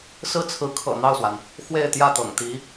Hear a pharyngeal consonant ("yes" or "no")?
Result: no